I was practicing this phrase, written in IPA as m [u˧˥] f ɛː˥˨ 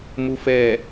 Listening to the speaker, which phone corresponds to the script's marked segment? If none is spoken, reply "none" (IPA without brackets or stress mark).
u˧˥